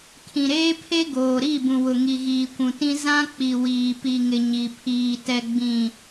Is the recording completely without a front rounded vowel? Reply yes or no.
yes